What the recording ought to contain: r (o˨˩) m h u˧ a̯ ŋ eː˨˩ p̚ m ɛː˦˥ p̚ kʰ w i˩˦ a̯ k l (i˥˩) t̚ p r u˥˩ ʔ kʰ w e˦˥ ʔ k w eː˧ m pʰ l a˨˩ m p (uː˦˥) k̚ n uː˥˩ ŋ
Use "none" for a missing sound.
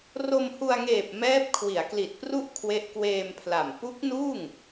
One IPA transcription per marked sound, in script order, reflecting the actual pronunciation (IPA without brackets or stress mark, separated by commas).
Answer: o˧, i˨˩, u˦˥